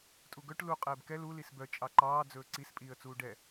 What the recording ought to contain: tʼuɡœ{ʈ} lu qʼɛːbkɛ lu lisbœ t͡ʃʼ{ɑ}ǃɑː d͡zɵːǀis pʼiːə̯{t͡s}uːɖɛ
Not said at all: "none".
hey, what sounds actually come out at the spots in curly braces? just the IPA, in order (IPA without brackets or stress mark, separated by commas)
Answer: ʈ, ɑ, t͡s